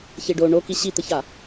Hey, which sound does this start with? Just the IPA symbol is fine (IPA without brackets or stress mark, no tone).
ç